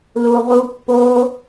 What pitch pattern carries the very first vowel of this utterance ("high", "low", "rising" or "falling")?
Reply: low